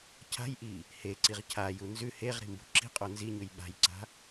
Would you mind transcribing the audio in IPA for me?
cʰ a̤ j ʔ i | h e ǀ i ʁ cʰ a j u n z ʉ h e ʁ ɾ i̤ m b ṳ ǁ i̤ qʼ o n z i ɲ ʉ j ɓ a̤ j ǀ a̤

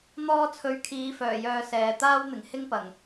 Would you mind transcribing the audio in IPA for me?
n̪ ɔː˧ t͡sʰ ɵ˨˧ ɥ kʰ iː˨˧ f œː˨˩ j œː˧ s ɛː˨ t̪ aː˥ w n̪ ɪ˨˩ ŋ h ɪ˥ ŋ p ɐ˨˩ ŋ

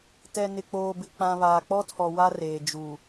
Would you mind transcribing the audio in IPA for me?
t ɛ˨ n ɪ˨ k͡p oː˨ b ɪ˨ k͡p ã˨ β aː˨ k͡p ɔ˦ tʰ ɔ˨ w a˦ r eː˨ d͡ʒ u˨

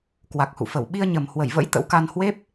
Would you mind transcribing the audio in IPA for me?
k w a˨˩ k̚ h ṵ˧˨ f ə˧˩ w ɓ i˧ ə̯ ɲ ə˨˩ m h w ə˧˩ j v ə̰˧˥ j t̪ ə̰˧˥ w k a˧ n h w e˦˥ p̚

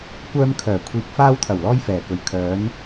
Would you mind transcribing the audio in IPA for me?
kʷ œː˧ m kʰ œː˨˩ kʷʰ iː˨ k̚ f aː˧ w t̪ʰ ɐ˨˩ w l ɔː˧ j f ɛː˨˩ k ɵ˨˩ ɥ kʰ œː˨˧ n

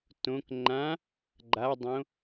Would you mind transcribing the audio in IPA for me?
t õ k ŋ͡ǃ ã | ɡ͡ǃ a dˤ õ

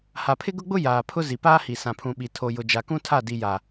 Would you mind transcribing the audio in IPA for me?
h a˨ pʰ ɪ˦ ɡ ʊ˦ ɡ͡b ʊ˦ j aː˨ pʰ ʊ˦ z i˨ p aː˦ h i˨ s ã˨ pʰ ũ˨ ɓ i˨ tʰ o˨ j ʊ˨ d͡ʒ a˨ k ũ˦ tʰ a˦˨ d i˨ j a˨

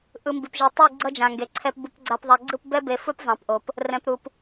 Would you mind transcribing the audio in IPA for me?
ʔ ɯ˨ m b i˨ p ʒ e˨ tˤ u˦˨ ɡ͡ǀ ʌ˦ d͡ʒ ã˨ ŋ ɡ e˨ ǀʰ ɛ˨ p b u˨ p ɡ͡ǀ a˨ p ðˤ a˨ ɡ͡ǀ ɯ˦˨ p b ɛ˦ b e˨ f u˦ p zˤ ã˨ p ʔ o˨ p | r ɛ̃˨ p ɾ u˨ p

